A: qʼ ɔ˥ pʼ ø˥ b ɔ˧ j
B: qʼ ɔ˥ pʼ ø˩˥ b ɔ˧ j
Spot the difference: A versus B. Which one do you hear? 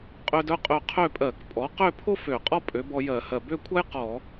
B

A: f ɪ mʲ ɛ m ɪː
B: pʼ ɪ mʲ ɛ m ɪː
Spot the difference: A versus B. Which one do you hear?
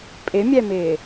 B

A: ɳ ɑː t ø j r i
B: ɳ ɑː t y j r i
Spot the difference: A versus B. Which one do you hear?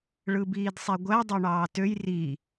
A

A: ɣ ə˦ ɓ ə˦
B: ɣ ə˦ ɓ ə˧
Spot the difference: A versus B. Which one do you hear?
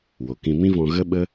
A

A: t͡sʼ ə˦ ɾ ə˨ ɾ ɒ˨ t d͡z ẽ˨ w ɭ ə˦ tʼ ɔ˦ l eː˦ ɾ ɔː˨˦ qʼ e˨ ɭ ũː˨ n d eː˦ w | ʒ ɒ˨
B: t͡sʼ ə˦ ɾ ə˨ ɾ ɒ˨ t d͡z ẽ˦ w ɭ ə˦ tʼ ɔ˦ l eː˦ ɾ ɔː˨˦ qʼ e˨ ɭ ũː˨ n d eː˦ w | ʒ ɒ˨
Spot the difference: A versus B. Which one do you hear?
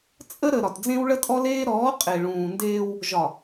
B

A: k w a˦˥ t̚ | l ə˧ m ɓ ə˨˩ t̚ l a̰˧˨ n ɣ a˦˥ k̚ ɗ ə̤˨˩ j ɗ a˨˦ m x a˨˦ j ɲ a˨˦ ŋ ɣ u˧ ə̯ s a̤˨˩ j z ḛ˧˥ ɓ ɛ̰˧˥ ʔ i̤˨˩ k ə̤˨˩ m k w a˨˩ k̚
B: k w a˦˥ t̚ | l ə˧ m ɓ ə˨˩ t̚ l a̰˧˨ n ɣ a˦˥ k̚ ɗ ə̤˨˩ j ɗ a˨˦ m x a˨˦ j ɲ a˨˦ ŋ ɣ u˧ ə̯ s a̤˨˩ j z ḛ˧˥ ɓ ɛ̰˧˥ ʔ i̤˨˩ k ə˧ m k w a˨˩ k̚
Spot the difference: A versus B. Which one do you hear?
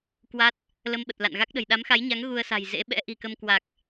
B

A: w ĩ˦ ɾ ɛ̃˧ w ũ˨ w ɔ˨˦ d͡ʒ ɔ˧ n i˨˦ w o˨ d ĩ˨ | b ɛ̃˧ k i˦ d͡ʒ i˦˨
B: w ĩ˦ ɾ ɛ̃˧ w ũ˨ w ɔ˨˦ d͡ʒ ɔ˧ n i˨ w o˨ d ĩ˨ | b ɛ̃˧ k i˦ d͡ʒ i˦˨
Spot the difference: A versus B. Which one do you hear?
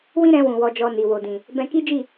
B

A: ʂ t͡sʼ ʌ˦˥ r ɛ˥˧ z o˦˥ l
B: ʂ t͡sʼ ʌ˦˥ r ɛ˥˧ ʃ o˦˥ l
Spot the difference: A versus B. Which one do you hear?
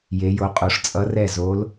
A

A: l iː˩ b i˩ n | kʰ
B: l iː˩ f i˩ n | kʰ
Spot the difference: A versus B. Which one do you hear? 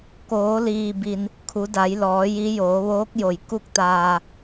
A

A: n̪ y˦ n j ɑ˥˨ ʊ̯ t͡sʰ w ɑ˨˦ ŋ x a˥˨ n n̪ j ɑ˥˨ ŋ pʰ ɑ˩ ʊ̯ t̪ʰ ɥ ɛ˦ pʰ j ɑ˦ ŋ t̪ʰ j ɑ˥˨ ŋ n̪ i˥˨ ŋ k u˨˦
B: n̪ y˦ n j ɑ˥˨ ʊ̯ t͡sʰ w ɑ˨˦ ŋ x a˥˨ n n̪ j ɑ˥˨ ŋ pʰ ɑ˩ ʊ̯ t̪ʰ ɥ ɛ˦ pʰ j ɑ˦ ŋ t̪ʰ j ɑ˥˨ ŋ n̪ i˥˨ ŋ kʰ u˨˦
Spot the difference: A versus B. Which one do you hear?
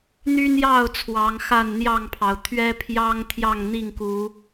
A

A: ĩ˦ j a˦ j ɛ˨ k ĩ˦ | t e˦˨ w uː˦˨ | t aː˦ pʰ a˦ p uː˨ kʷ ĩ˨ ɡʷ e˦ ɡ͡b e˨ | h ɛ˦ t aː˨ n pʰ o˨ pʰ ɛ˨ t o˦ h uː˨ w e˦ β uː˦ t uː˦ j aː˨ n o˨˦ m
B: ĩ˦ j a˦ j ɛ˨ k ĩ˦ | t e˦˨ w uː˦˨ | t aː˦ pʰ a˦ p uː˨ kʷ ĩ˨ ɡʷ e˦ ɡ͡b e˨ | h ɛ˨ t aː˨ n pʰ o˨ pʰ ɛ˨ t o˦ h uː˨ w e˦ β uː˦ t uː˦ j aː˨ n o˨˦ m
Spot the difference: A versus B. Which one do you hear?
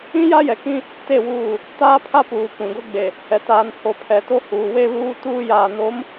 B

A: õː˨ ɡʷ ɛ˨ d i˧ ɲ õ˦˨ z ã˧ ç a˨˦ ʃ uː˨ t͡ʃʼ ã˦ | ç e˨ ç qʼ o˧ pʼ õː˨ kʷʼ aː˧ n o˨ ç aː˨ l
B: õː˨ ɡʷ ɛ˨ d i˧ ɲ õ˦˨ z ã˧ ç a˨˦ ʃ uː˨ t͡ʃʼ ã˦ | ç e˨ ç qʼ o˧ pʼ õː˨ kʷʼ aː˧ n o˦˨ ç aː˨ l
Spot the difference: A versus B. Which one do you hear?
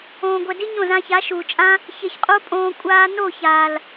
B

